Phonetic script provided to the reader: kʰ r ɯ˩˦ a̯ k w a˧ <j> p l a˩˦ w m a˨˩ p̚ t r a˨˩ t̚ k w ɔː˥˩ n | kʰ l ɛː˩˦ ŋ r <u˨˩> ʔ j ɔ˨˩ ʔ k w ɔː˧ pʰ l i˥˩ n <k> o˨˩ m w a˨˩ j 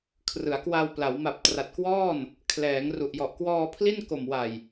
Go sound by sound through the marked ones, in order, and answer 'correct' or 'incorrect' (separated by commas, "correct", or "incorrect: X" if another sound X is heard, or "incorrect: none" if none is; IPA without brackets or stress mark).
incorrect: w, correct, correct